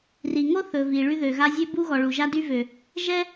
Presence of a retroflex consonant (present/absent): present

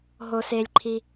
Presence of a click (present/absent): present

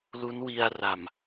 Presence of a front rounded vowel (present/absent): absent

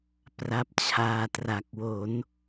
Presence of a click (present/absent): absent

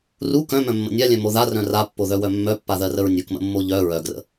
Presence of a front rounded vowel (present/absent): present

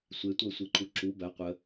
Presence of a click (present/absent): present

